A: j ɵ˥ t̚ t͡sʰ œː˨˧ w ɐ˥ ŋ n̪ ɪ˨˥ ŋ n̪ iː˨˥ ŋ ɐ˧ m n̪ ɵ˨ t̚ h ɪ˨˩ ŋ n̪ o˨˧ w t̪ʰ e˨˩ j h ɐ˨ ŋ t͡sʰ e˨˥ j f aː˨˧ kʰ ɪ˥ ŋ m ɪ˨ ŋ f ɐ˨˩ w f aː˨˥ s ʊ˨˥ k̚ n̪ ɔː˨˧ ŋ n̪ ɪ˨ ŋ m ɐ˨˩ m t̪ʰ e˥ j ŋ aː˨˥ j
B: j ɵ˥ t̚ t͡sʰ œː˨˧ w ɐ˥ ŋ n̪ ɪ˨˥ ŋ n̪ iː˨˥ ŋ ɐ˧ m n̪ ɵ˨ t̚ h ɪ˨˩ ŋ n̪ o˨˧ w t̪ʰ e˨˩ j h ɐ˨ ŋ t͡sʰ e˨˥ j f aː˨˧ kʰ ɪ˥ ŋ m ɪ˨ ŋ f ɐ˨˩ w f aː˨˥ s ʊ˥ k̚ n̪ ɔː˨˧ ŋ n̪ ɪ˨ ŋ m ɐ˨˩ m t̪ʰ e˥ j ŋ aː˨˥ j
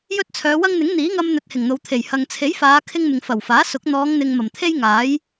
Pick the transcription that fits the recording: A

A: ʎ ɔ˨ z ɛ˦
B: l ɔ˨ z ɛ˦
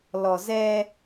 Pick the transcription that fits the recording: B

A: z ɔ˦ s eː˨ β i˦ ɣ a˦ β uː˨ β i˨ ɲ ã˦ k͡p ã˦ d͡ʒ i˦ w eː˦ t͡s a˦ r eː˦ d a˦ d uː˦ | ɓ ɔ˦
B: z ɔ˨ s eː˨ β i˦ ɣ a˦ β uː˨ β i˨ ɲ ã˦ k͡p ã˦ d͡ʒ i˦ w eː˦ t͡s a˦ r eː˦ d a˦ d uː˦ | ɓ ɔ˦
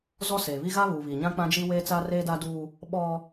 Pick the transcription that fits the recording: A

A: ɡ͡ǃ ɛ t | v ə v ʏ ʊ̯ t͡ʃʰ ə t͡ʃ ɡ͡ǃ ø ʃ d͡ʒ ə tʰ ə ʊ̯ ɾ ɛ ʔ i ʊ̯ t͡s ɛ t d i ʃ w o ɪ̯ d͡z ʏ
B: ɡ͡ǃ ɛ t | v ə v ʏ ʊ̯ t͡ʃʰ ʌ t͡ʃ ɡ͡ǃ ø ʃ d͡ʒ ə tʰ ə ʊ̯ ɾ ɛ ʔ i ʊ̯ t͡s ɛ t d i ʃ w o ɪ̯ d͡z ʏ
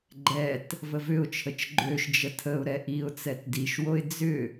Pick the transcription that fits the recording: A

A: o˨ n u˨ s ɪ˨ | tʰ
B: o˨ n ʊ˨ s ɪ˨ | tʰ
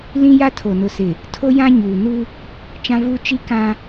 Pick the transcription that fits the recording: B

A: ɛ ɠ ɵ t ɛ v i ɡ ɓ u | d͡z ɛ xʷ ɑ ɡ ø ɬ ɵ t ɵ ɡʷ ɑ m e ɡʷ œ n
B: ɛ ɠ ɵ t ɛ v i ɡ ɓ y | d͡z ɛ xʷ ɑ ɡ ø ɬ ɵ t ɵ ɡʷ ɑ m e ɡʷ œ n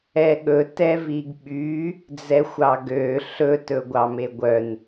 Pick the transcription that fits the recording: B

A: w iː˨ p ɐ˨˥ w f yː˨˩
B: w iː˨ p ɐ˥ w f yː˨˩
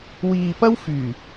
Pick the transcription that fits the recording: B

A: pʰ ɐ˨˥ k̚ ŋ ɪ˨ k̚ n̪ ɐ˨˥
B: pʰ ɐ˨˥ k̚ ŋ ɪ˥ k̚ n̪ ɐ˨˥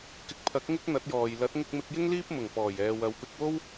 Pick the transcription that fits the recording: B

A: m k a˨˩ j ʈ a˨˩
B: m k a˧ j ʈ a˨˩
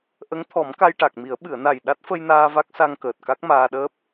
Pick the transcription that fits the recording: B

